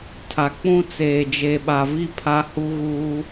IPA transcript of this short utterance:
tʰ a˨ k͡p ũ˦ t͡s eː˨ d͡ʒ e˨ ɓ a˨ v i˦˨ pʰ a˦ h u˦ ɣ uː˦

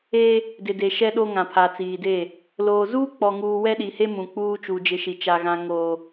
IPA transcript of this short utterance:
eː˦ | d ɪ˨ d e˨ ʃ ɛ˦ ɗ o˦ ŋ ã˨ pʰ a˨ t͡s iː˨ d eː˦˨ | l oː˨ z uː˦ k͡p ɔ˨ ŋ uː˨ w ɛ˦ ɗ i˨ h e˦ m ũ˨ k͡p uː˦ t͡ʃ u˨ d͡ʒ ɪ˦ ʃ i˨ t͡ʃ a˨ ɣ ã˨ ŋ oː˨

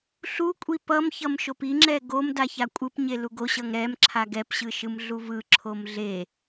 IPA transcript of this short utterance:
ɬ u kʷʼ i p ʌ m ç ʌ m ʃ o p i ŋ͡ǁ ɛ ɡ o m d a ç a kʷʼ ɯ p ɲ e l u ɡ o ɕ ʌ ŋ ɾ ɛ m ǁʰ a ɡ ɛ p ɕ ɯ ʃ ɯ m ɮ u v ɯ ǁʰ o m ɮ e

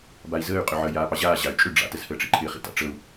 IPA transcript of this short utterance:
b a i̯ z əː y̯ qʼ ʏ ʕ əː j aː p ɑ ʑ aː ʑ a y̯ t͡ʃʼ ʏ ɖ͡ʐ a̰ t ə z h əː ʈ͡ʂ ḭ ǃʰ ɪː χ ḭ t a̰ ʈ͡ʂ ə u̯

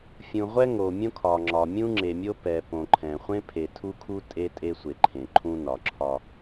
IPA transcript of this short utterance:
fʲ ũ˨ ʁʷ ɛ˦ ŋ o˨ mʲ õ˦ kʰ ɒ˨ ŋ͡ǁ ɒ˨ mʲ ũ˦ ŋ͡ǁ e˨ mʲ o˦ p ɛ˨ p õ˨ ǃʰ ɛ̃˨ χʷ ẽ˦ pʰ e˨ tʰ u˦ kʰ u˦ tʼ e˦ tʼ e˦ sʷ e˨ ǃʰ ẽ˨ ǃʰ ũ˦ n ɒ˨ ǁʰ ɒ˦

